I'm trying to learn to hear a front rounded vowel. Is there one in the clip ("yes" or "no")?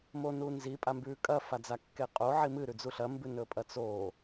no